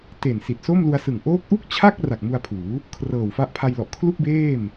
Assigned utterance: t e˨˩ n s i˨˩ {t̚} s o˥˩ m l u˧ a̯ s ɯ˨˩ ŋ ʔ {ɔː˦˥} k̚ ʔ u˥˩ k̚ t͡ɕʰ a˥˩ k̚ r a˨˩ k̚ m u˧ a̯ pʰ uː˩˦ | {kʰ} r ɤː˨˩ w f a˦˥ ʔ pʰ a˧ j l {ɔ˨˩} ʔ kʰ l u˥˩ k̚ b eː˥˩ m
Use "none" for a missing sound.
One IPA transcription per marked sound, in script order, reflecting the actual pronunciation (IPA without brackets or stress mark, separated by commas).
t̚, oː˦˥, kʰ, ɔ˨˩